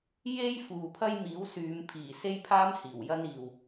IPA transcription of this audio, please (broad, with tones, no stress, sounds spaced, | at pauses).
j e˥ j f uː˨ pʰ ɐ˥ j m iː˨˥ w s yː˨˧ m pʰ iː˨˩ s e˥ j pʰ aː˥ m h iː˨˩ w j ɐ˥ n iː˨ w